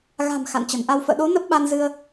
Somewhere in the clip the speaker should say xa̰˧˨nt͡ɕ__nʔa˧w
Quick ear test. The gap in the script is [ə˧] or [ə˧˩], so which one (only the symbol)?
ə˧˩